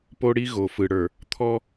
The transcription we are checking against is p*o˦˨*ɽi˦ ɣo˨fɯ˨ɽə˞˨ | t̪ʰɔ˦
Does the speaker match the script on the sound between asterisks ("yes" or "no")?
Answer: no